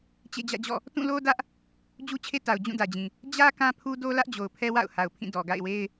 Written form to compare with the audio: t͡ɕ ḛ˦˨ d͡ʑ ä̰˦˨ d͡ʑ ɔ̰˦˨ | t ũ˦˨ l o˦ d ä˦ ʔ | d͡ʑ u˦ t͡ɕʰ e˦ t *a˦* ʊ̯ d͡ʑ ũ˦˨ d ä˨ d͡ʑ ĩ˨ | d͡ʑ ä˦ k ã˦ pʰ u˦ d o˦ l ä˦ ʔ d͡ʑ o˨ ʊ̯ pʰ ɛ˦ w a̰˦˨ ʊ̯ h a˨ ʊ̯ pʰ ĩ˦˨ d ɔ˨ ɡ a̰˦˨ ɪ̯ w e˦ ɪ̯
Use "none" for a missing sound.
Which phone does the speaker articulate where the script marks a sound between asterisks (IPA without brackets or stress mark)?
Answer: a˨